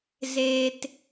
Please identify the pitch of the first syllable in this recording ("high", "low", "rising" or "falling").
low